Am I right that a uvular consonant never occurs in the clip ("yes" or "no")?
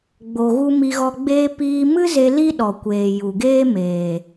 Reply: yes